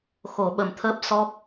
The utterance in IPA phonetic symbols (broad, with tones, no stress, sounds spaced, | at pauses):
x o˨˩˦ ɓ ə˨˩ m t̪ʰ əː˦˥ p̚ s ɔ˦˥ k̚